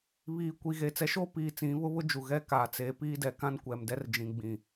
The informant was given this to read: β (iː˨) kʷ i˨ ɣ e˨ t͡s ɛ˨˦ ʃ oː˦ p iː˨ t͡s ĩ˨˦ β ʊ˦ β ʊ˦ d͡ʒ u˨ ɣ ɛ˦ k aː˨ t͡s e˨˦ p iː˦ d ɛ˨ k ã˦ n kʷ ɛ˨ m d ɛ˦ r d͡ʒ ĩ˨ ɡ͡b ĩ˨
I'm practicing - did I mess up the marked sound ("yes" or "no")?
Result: no